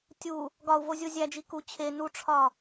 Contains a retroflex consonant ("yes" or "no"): yes